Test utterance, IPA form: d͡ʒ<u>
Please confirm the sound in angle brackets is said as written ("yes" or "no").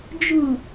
yes